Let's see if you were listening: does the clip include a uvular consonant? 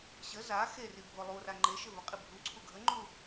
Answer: yes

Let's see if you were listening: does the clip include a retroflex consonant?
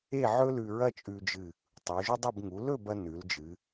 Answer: no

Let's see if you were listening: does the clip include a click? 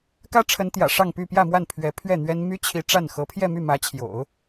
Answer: no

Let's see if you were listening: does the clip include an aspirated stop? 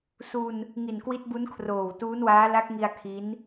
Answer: yes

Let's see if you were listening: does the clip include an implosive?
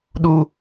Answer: yes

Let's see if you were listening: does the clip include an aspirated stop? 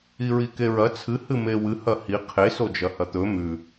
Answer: yes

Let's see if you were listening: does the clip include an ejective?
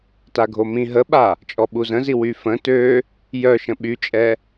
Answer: yes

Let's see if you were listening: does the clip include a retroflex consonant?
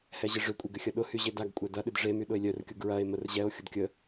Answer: yes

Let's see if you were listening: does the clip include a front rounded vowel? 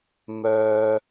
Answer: yes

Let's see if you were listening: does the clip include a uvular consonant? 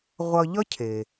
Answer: yes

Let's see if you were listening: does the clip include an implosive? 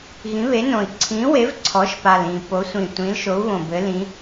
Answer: no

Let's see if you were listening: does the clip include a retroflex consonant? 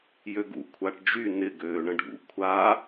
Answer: yes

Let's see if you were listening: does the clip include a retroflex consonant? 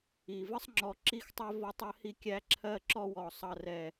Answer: no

